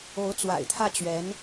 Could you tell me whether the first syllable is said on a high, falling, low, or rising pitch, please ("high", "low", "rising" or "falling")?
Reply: rising